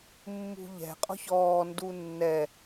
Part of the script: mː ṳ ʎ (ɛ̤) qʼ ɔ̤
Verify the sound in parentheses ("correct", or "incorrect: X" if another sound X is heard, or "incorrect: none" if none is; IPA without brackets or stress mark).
correct